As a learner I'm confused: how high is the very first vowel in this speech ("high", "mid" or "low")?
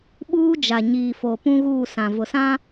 high